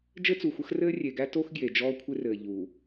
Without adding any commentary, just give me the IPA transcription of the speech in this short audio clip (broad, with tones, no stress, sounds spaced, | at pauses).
d͡ʒ ɘ˦ t͡s u˨ xʷ ə˦ x r ɘː˦ rʲ e˨ ɡ æ˦ t o˦ x ɡ j e˨ d͡ʒ ɔː˦ kʷʰ ɪ˦ r ɘː˨ ʎ u˨